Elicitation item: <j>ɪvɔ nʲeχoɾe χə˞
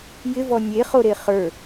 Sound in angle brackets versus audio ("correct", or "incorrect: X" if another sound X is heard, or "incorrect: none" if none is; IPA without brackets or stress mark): correct